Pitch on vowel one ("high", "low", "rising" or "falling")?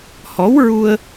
rising